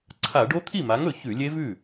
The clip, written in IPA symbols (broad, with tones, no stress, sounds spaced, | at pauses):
ǀʰ a˧˩˧ ɖ o˦˥ t̪ʰ i˥˩ m a˨˥ ŋ ɵ˧˩˧ ç ʉ˧˩˧ lʲ e˦˥ v ʉ˥˩